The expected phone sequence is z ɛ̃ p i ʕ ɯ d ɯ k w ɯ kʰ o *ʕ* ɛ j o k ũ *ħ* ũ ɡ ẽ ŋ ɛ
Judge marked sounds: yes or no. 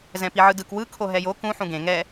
no, yes

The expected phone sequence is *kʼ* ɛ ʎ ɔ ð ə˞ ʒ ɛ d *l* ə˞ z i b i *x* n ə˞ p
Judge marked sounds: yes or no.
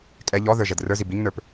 yes, no, no

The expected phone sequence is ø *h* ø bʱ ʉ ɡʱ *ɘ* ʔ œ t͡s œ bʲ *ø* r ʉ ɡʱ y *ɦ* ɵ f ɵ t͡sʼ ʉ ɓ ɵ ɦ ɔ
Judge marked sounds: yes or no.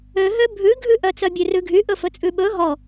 no, no, no, no

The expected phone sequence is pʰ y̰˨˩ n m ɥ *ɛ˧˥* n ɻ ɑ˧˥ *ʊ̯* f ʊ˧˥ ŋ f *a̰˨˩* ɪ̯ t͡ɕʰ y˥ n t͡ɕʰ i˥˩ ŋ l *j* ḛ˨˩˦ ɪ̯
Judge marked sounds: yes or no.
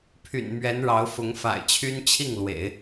yes, yes, yes, no

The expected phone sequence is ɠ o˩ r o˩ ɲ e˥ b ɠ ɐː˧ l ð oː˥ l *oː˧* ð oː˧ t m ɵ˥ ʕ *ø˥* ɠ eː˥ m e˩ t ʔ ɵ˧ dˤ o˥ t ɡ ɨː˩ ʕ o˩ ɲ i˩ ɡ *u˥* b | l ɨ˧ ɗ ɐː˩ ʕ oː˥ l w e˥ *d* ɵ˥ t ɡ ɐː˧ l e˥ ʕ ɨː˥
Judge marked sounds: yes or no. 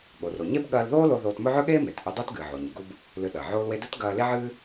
no, no, yes, yes

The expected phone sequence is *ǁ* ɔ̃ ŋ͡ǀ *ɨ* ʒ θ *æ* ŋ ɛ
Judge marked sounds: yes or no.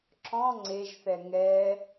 yes, no, no

